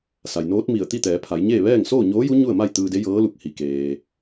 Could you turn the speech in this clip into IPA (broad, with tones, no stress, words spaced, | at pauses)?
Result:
sa˩jnoː˧˥t̚ mi˧˩ə̯t̪i˥˨ t̪ɛː˩˧pʰa˩˧jɲeː˥˨ ʋɛː˥˨ŋ soː˥˨ɲoː˧˥ju˧˥ ɲu˥˨ə̯ma˥˨j t̪ɯː˧de˧˥jɤː˧˥lu˧˩k̚ hi˩keː˩